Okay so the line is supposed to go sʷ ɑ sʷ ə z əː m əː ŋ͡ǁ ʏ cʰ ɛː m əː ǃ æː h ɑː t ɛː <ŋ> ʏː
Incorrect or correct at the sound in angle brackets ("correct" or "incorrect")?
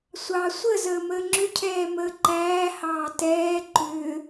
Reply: incorrect